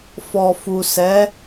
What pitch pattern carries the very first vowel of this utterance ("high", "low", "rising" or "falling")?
low